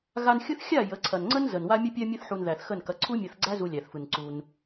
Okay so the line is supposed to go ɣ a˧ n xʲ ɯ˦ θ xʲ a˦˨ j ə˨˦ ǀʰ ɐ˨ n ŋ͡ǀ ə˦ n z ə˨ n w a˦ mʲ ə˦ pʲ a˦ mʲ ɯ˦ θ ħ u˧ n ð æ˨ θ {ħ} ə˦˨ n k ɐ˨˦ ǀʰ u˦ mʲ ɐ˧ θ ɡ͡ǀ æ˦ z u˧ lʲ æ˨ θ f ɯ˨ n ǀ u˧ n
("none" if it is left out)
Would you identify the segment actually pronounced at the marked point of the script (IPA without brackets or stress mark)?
x